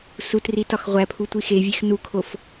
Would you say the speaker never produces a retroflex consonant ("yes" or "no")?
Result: yes